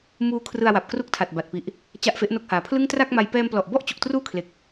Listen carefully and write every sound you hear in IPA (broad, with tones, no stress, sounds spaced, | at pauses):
m uː˦˥ kʰ r ɯ˧ a̯ w a˨˩ p̚ k r u˦˥ k̚ tʰ a˨˩ t̚ b a˨˩ t̚ p i˨˩ ʔ | t͡ɕ a˥˩ ʔ f e˦˥ ʔ n o˦˥ k̚ h aː˩˦ pʰ l ɯ˥˩ ŋ t r a˥˩ k̚ m a˧ j p ɛː˧ m p l ɔ˨˩ ʔ b ɔ˥˩ ʔ t͡ɕ u˨˩ k̚ t r uː˥˩ kʰ l e˨˩ k̚